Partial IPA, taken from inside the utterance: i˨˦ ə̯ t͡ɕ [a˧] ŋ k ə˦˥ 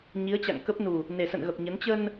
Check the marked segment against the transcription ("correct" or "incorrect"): incorrect